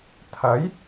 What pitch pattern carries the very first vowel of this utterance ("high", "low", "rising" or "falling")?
rising